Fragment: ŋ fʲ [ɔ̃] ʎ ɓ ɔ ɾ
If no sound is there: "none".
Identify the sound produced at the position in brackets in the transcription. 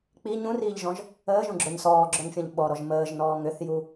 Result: ɔ̃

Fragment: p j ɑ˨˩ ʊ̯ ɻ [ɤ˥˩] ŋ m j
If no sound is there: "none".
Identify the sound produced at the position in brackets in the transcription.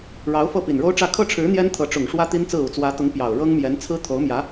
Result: ɤ˥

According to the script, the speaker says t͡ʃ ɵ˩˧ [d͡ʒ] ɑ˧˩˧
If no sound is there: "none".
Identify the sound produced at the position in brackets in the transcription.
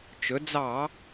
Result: d͡z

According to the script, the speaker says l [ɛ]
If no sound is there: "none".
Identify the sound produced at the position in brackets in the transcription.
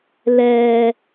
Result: ɛ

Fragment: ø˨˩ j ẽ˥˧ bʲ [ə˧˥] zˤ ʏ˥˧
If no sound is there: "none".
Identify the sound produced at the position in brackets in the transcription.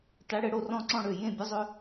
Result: ə˧˥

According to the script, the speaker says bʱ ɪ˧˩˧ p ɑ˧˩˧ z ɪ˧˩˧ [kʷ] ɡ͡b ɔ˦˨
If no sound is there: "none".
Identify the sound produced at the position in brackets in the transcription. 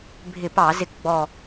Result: k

